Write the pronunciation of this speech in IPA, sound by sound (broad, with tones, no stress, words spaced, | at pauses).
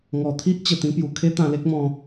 ŋɔ˨˩t̪ʰi˦ʔ t͡ɕə˨˩t̪ĩ˧pju˨˩ kʰe˦t̪ã˧le˦k̚mɔ̃˧